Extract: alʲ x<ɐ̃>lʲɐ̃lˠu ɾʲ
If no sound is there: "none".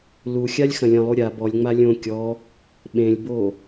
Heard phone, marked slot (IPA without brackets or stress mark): ɐ̃